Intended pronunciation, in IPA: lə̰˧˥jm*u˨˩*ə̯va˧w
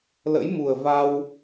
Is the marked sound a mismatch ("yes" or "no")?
no